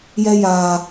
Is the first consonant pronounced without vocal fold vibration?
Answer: no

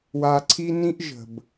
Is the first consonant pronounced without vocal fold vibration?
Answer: no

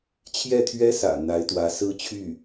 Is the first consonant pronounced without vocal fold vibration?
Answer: yes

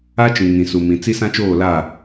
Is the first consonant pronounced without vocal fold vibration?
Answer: yes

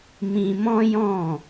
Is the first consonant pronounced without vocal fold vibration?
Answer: no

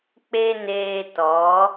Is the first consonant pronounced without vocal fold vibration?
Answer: yes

